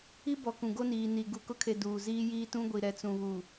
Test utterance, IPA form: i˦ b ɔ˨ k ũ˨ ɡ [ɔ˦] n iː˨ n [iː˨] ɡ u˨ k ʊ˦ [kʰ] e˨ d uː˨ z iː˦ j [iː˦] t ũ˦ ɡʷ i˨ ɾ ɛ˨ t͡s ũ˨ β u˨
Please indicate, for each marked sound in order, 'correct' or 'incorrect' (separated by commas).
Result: incorrect, incorrect, correct, correct